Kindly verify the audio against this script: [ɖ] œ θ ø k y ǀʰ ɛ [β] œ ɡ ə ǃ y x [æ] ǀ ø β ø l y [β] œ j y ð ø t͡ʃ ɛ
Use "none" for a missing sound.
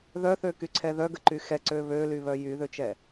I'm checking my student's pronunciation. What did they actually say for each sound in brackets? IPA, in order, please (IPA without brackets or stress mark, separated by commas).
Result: ð, ð, ɛ, β